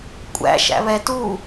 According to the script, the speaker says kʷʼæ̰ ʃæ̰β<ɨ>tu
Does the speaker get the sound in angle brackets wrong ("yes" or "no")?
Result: yes